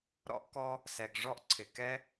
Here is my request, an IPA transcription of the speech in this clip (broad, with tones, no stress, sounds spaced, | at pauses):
ɾ ɔ̰˥ ʔ k ɔ˥ | s ɛ˩ ɡ ʐ ɔ˥ ʔ ǀʰ ɪ˩ k ɛ˥